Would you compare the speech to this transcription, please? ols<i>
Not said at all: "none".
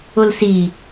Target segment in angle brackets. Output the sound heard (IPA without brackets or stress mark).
i